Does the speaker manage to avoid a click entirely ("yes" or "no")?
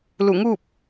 yes